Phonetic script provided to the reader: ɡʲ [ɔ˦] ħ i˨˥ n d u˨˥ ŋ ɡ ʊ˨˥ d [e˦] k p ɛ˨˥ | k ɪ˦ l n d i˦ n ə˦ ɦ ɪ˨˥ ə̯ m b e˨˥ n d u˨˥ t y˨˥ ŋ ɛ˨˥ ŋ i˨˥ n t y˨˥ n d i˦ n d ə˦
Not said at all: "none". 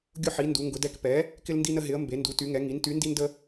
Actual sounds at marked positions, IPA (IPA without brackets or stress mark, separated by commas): ʊ˦, ɛ˦